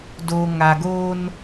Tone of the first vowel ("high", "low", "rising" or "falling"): low